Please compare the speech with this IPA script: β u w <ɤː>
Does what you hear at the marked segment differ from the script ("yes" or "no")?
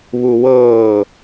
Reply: no